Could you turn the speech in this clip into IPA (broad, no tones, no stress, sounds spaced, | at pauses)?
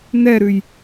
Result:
n ɛ ɾ ʉ j